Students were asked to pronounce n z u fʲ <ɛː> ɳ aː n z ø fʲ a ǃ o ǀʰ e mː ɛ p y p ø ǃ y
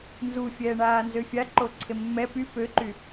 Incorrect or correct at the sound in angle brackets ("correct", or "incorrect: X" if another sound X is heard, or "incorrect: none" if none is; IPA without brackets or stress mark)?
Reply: correct